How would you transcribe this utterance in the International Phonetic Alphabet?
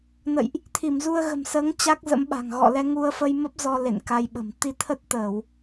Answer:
n ə̰˧˨ j ʔ | t̪ʰ i˧˩ m z u˧ ə̯ ɣ ə̤˨˩ m s əː˨˦ ŋ t͡ɕ a˦˥ k̚ z ə̰˧˥ m ɓ a̤˨˩ ŋ ɣ ɔ̰˧˨ l ɛ˧ ŋ u˧ ə̯ f ə˧ j m ə˦˥ p̚ z ɔ˧ l ḛ˧˨ n k a˧ j ɓ ə̤˨˩ m t̪ i˧ t̪ʰ ə˦˥ t̚ t̪ əː˧˩˨ w

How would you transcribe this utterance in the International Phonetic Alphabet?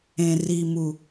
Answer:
ẽ˨ r i˨ m u˨

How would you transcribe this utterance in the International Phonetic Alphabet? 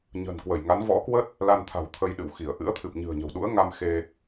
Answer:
ɲ ə̤˨˩ n k w ə˧˩ j ŋ a˨˦ n v ɔ̰˧˥ k w ə˦˥ t̚ | l a˧ n t̪ʰ a̤˨˩ w t̪ʰ ə˧ j ɗ ɨ̰˧˨ w x i˧˩ ə̯ ʔ ɨ̰˧˥ ə̯ t̪ʰ ɨ˨˩ p̚ ɲ ɨ̤˨˩ ə̯ ɲ ə̤˨˩ w ɗ ṵ˧˥ ə̯ ŋ a˧ m x e˧

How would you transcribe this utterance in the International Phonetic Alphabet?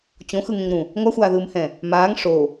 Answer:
t͡ɕ õ x ɯ ŋ ẽ ŋ ɾ ũ | ŋʷ a xʷ aː ð ɯː m h ɛ̃ | m aː ŋ ʂ o

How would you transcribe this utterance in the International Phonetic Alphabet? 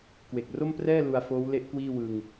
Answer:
k w e˨˩ k̚ r o˥˩ m p r ɛː˥˩ l u˧ a̯ f oː˦˥ w l e˦˥ ʔ k w iː˥˩ w ɯ˧ ŋ

